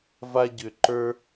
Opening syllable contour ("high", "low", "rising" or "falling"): high